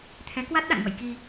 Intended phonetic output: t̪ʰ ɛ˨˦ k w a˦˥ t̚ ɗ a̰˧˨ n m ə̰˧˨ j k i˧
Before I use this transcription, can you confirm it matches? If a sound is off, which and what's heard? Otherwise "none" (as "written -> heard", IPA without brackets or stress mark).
none